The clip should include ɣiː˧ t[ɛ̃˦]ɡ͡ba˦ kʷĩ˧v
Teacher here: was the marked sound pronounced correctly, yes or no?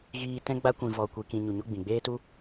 yes